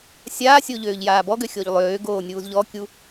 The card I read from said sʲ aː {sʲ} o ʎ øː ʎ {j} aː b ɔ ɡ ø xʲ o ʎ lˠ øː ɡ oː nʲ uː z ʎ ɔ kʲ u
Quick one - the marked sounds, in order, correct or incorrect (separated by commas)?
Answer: correct, correct